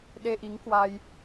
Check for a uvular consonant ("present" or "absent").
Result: absent